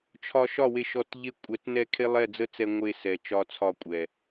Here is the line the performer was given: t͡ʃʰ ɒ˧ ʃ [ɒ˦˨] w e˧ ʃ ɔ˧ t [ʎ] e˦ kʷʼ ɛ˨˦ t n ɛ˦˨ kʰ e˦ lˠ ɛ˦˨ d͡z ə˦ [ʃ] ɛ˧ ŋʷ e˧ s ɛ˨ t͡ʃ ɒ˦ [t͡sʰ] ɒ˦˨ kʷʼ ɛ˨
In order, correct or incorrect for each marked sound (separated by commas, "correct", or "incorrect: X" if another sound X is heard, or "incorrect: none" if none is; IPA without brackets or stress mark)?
correct, correct, incorrect: t͡s, correct